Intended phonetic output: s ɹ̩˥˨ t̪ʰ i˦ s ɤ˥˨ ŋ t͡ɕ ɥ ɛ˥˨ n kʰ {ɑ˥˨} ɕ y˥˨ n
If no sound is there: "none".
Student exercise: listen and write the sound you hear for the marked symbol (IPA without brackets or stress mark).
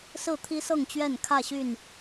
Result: ä˥˨